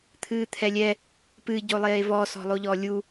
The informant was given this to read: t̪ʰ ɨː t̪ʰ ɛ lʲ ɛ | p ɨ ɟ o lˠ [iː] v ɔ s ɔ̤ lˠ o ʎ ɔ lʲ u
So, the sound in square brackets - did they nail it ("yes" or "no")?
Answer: no